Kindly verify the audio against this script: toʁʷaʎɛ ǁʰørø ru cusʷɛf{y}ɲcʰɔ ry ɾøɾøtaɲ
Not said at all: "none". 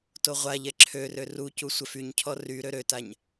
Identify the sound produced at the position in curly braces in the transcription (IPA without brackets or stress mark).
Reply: y